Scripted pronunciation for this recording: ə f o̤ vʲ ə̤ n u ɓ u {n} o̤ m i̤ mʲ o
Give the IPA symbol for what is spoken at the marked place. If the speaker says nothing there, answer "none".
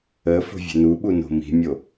n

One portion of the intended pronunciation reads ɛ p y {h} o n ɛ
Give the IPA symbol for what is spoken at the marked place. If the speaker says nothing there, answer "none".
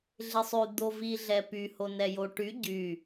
h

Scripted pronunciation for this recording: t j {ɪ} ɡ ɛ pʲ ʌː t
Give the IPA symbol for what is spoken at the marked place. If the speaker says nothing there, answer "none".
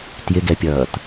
ɪ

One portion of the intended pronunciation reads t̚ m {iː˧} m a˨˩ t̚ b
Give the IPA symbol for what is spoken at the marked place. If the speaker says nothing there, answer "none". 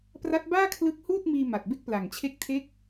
iː˧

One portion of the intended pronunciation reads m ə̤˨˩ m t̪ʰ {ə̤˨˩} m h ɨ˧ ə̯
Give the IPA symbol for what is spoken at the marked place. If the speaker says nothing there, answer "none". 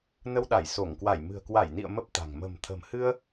ə̤˨˩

